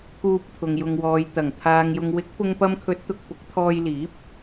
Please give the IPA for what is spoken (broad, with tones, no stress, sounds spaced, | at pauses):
k uː˧ p̚ t̪ʰ ʊ˨ ŋ j ʊ˨ ŋ w ɔː˨ j t̪ ɐ˨˩ ŋ t̪ʰ aː˨ ŋ j ʊ˨ ŋ w ɪ˨˥ k̚ p ʊ˧ ŋ p ɐ˧ m kʰ ɵ˨˥ t̚ t̪ ʊ˨ k̚ p ʊ˨˥ k̚ t̪ʰ ɔː˧ j l iː˨˥ p̚